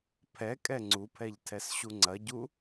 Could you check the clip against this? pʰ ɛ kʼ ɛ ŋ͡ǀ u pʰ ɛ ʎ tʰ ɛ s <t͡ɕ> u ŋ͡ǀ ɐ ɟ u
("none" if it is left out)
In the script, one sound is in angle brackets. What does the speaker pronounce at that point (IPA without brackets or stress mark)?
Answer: ɕ